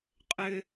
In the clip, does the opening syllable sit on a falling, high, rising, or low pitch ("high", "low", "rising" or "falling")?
high